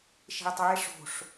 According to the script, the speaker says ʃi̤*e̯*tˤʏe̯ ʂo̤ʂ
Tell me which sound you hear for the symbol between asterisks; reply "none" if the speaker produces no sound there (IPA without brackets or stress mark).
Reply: e̯